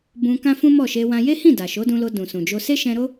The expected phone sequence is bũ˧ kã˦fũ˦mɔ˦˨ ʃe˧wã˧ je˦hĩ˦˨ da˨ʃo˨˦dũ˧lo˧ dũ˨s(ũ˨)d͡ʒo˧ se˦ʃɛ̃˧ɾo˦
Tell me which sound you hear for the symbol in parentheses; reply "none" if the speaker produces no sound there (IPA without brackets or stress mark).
ũ˨